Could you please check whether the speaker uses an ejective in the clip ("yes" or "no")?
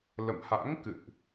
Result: no